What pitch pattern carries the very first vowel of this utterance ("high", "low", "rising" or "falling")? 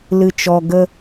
low